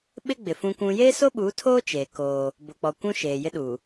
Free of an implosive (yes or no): no